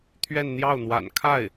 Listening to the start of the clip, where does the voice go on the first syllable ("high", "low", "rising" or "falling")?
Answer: falling